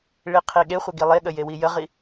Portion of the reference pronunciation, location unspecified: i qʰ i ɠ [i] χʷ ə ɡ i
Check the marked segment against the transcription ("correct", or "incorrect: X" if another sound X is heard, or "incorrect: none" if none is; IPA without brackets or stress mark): incorrect: e